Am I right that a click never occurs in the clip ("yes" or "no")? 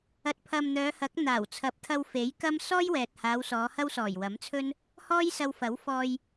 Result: yes